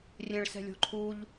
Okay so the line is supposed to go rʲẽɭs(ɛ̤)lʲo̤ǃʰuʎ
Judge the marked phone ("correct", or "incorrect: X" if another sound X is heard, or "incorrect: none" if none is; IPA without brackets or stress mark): correct